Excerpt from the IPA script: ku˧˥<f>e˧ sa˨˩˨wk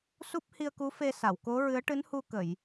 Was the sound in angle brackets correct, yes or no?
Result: yes